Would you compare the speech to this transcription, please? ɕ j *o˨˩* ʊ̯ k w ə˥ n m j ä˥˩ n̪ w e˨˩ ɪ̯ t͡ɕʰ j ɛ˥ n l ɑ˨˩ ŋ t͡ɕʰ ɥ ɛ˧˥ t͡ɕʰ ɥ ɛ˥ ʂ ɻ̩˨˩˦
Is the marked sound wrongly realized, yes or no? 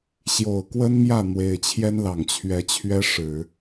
no